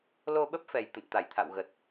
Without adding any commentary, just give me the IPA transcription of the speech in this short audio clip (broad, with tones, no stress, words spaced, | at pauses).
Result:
lo˧ɓə˦˥p̚fɛ˨˩j t̪ə̰˧˨nt̪a˧˩jt̪ʰa̰˧˨wɣə˨˩t̚